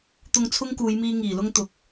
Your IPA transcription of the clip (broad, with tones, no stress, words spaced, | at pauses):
t̪ʊ˧ŋt͡sʰʊ˥ŋkuː˨˧jmiː˧ ŋiː˨˩lʊ˥ŋt̪ʊ˨k̚